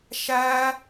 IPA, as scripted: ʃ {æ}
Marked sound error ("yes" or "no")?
no